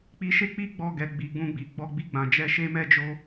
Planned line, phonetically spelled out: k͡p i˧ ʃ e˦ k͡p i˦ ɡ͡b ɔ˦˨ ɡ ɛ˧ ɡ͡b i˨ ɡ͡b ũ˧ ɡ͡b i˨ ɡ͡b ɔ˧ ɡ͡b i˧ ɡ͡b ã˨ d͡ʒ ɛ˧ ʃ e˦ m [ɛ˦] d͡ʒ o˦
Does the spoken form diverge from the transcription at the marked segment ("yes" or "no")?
no